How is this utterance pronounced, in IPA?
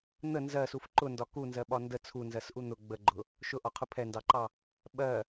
n̪ ə n z ɜ s u f ǃ ʊ n d ɒ k u n z ɜ ɓ ɒ n d ə t͡sʰ u n z ɜ s ʔ u n̪ ʊ ɡ͡b ə ɡ͡ǃ ʊ | ʃ ʊ ʔ ɒ qʰ ʊ pʰ ɛ n d ɑ ǃ ɑ | ɓ ɜ

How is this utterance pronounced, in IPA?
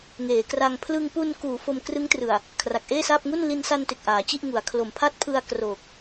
ŋ eː˩˦ k r a˧ ŋ pʰ l ɯ˧ ŋ p u˧ n k uː˩˦ f o˧ m k r ɯ˦˥ ŋ t r ɯ˨˩ a̯ | kʰ r a˨˩ k̚ ʔ eː˥˩ s aː˥˩ p̚ ŋ u˥˩ n l i˧ n s a˧ n t e˨˩ k̚ ʔ aː˩˦ t͡ɕ i˥˩ ʔ ŋ u˩˦ a̯ kʰ l o˩˦ m pʰ a˦˥ t̚ pʰ ɯ˧ a̯ k r oː˨˩ k̚

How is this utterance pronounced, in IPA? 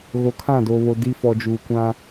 ɣ o˨ kʰ ã˦˨ d oː˨ β o˨ d i˦ f ɔ˨ d͡ʒ uː˨ kʷ ã˦

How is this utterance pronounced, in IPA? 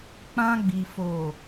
k͡p ã˧ ɡ͡b i˨ f o˨

